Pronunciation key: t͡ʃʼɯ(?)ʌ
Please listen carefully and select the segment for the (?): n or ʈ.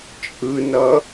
n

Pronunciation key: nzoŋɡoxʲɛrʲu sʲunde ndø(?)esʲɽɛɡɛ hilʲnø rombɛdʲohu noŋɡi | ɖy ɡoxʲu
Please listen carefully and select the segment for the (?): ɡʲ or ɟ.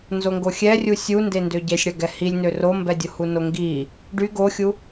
ɟ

